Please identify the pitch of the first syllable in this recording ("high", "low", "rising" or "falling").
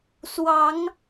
rising